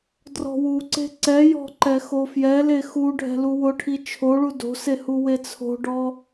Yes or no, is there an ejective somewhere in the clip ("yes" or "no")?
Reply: no